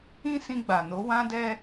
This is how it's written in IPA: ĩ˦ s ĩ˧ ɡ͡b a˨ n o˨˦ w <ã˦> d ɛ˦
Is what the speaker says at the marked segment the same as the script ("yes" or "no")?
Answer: yes